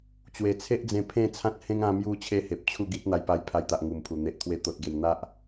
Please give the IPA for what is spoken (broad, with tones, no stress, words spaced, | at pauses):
t͡ɕwe˨˩ t͡sʰe˦ʔd͡zẽ˧ pʰẽ˥˧ t͡sʰã˦t̚hẽ˦ŋ ã˧mju˧ t͡ɕʰe˦he˨p̚ t͡ɕʰu˥˧ɡi˦t̚n̪a˧j pa˧jpʰa˧jt̪a˨ʔ ŋu˨˩mpʰu˨˩ n̪e˨ʔt̪ʰwe˧t̪o˨t̚ɡe˨˩m n̪a˦ʔ